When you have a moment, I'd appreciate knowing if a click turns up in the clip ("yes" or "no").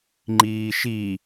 yes